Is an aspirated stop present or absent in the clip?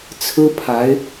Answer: present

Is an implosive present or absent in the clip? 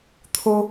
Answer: absent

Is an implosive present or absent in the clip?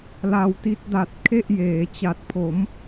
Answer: absent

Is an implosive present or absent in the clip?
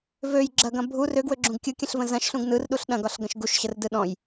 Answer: present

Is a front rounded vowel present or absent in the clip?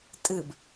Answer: absent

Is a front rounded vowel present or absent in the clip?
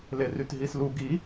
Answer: present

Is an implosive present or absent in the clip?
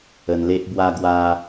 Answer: absent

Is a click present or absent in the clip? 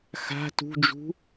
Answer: absent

